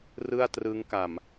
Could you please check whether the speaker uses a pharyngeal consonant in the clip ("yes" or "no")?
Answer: no